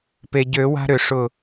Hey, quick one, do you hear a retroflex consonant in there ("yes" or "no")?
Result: yes